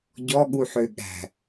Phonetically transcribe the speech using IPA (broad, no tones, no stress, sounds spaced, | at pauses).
ɟ ɔ ɠ u ħ ø ɠ æ̤